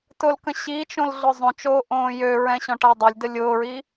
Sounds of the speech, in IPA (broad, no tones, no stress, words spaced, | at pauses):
tʊlkə̃ ɕit͡ʃõl ɮʊzˤõt͡ʃoː ʔõːjøɹɛ̃ ɕɔ̃ʈadˤølʲdə lʲʊːɹi